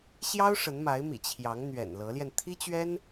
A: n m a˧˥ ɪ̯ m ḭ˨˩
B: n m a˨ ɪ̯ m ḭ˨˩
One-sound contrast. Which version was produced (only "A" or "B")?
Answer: A